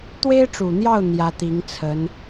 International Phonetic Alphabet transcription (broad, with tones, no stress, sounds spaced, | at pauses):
t̪ w e˥ ɪ̯ ʈ͡ʂ u˨˩ n̪ j ɑ˥˩ ʊ̯ n̪ j ä˧˥ t̪ i˧˥ ŋ t͡sʰ ə˧˥ n